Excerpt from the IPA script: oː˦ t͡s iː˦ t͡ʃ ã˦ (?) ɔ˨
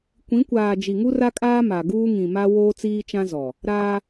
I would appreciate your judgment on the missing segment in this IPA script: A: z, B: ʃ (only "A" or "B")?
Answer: A